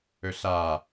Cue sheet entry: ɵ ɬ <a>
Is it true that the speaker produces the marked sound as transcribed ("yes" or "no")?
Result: yes